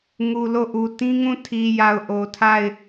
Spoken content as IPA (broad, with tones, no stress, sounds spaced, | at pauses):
ŋ u˨ l o˦˨ ʔ u˨ t ĩ˦ ŋ ũ˦˨ tʰ i˨ j a˨ ʊ̯ ʔ o˨ tʰ a˦˨ ɪ̯